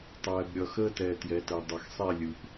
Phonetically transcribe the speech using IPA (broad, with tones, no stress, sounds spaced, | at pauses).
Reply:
tˤ ɛː˩ b ɾʲ ʌ˩ x əː˦ t ɛ˩ t j ɛ˩˧ t ɛ˩ dˤ ʌ˩ x sˤ e˦˨ lʲ ɯ˩ p